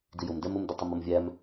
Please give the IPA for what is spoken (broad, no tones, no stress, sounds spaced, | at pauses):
d i j ʊ m d ɛ m ʊ m d ə tˤ ɪ m ʌ m vʲ æ m